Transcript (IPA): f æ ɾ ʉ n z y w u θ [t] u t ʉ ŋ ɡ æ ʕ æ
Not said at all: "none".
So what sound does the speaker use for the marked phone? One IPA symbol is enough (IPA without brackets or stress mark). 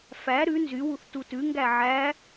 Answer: t